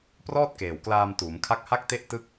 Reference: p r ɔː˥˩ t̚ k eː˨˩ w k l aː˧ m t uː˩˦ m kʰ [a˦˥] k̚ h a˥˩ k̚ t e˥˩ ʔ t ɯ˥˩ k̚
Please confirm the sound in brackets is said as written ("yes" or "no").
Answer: yes